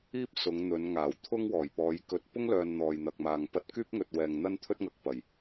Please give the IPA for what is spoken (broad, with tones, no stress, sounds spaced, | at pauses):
iː˥ p̚ s ʊ˨˧ ŋ n̪ ɵ˨˧ n ŋ aː˨˩ w t̪ʰ ʊ˥ ŋ w ɔː˨˩ j p ɔː˨˧ j k ɵ˧ t̚ p ʊ˥ ŋ l œː˨ n n̪ ɔː˨ j n̪ ɐ˨ k̚ m aː˨ ŋ p ɐ˧ t̚ k yː˥ p̚ ŋ ɵ˨ t̚ w ɛː˨ ŋ n̪ ɐ˥ n t̪ʰ ɵ˥ t̚ ŋ ɐ˨ k̚ p ɐ˨˩ j